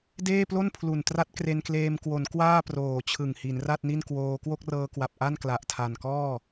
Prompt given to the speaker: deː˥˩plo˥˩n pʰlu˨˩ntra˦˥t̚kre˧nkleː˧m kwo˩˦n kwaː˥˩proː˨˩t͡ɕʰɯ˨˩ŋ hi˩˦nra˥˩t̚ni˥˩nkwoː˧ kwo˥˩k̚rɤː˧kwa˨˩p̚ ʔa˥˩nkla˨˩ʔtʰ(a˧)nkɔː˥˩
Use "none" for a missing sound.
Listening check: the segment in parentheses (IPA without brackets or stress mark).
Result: a˨˩